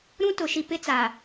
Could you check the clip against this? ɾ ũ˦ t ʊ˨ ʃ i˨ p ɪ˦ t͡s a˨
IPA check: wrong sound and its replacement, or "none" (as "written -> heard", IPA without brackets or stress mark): none